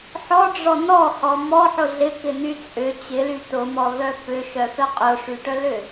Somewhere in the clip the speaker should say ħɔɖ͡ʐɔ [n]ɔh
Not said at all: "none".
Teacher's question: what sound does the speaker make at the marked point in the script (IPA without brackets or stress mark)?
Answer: n